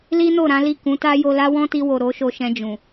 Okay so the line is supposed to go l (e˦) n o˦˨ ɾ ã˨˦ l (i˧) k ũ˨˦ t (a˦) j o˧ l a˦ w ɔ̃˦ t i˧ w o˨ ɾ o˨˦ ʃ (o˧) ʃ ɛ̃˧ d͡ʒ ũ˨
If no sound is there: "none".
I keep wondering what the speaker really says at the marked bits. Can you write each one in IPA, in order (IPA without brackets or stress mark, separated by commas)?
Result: i˦, i˦˨, a˦, o˧